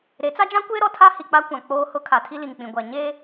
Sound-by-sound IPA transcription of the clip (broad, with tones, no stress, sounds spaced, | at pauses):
ɾ e˨˦ t͡s a˦ d͡ʒ ã˦ kʷ eː˦ ɾ ɔ˦ tʰ a˦ h i˨ k͡p a˦ kʷ ã˨ k͡p oː˦ h ʊ˦ kʰ a˨ tʰ i˦ l i˨ ŋ k͡p ĩ˨ ɡʷ a˨ ɲ eː˦